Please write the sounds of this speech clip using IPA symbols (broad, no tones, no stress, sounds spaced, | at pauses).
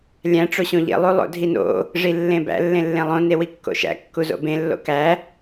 lʲ æ̃ ʈ͡ʂ o ɕ õ ʎ ḛ lˠ u lˠ o̰ dʱ i n o̰ | ʐ i lː ẽ b æ̰ lː ẽ lː ẽ lˠ õ n e w i kː o̰ ʃ æ̰ kː u z o̰ b ẽ lː o̰ k æ